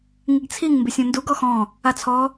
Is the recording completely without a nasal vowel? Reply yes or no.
no